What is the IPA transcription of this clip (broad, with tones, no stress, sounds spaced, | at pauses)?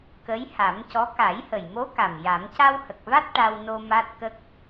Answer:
k ə˧˥ j h a˨˩˦ m c ɔ˧˥ k a˨˩˦ j h ə˨˩ j m o˧˥ k a˨˩ m j a˨˩˦ m c a˧ w h ə˨˩ k̚ v a˦˥ t̚ ʈ a˧ w n o˧ m a˦˥ t̚ k ə˦˥ k̚